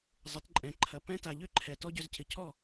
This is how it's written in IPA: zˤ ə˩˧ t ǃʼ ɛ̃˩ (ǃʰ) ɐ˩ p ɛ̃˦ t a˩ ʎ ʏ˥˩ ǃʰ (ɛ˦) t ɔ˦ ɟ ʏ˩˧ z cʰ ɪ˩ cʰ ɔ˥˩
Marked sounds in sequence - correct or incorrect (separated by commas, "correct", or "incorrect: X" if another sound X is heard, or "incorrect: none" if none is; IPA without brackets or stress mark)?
correct, incorrect: ɛ˩